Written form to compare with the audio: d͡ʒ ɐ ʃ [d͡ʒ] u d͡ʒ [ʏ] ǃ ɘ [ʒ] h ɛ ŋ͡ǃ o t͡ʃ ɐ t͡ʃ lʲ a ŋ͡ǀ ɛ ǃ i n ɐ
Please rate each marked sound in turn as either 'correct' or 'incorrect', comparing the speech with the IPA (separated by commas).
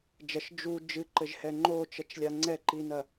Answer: correct, incorrect, correct